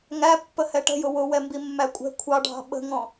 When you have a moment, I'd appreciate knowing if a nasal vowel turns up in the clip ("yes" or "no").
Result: yes